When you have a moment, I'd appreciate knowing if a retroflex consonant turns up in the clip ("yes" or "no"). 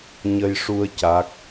yes